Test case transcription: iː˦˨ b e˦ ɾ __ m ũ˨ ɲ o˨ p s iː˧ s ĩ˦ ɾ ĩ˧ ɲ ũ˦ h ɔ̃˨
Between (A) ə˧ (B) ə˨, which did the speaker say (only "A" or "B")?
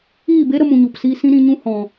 A